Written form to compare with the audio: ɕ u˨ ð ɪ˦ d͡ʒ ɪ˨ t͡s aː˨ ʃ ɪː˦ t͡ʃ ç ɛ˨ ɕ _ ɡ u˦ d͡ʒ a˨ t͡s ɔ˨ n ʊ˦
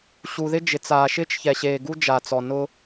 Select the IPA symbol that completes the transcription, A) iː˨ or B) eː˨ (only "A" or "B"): B